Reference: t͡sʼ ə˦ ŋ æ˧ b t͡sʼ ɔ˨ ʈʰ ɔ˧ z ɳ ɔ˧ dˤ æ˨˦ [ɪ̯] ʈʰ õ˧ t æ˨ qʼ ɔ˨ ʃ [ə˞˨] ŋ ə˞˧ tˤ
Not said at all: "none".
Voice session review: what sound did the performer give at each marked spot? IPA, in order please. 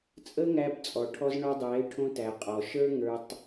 ɪ̯, ə˞˦

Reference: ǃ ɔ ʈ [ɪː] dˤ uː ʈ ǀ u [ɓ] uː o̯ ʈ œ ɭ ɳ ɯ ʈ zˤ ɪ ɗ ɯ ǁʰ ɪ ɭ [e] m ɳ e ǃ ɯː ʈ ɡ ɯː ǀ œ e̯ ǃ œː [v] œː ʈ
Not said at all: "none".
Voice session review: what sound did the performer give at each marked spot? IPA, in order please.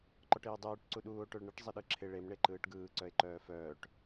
ɪː, ɗ, e, f

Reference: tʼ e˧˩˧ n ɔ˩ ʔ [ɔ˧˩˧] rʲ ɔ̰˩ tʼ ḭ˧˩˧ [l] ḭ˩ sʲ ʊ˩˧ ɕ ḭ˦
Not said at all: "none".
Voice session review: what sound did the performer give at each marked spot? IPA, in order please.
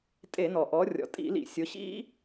ɔ˩˧, l

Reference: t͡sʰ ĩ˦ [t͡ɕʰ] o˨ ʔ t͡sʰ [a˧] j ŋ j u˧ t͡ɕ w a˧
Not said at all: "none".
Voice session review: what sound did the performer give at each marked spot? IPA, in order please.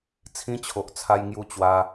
t͡ɕʰ, a˧

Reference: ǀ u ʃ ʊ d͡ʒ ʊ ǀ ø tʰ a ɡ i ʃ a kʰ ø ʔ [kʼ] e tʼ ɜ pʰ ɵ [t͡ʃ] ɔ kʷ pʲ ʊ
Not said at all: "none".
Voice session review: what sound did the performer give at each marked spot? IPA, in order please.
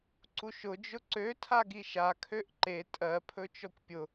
ǃ, t͡ʃ

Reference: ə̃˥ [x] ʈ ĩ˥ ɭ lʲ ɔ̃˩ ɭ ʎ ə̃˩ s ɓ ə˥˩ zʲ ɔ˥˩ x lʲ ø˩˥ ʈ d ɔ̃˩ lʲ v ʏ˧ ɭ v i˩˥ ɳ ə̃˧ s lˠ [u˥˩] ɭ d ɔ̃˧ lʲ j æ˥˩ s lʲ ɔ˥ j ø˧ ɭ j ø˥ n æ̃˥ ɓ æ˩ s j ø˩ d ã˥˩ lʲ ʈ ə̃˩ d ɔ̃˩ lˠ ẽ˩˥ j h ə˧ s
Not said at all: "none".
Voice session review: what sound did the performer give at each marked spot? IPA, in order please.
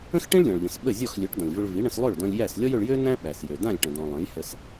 x, ø˥˩

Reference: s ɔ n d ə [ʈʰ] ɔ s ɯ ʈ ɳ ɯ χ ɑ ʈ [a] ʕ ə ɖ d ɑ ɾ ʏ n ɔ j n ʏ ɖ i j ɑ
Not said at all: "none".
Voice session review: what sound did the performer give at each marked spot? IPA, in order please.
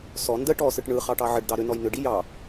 ʈ, ɑ

